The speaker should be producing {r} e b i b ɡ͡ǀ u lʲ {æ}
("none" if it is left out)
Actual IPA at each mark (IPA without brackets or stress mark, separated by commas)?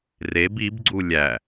r, æ